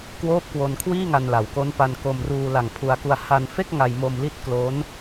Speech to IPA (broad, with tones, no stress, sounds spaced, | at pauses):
k w oː˦˥ p̚ k w o˧ n kʰ w iː˥˩ ŋ a˧ n l a˨˩ w k o˦˥ n p a˧ n k o˧ m r uː˧ l a˨˩ ŋ pʰ u˧ a̯ k u˧ a̯ h a˧ n f e˥˩ k̚ ŋ a˧ j m o˧ m l i˦˥ t̚ k l o˦˥ n